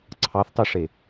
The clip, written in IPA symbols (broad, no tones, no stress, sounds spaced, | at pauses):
ǀʰ ɑ θ tˤ ɯ ʂ e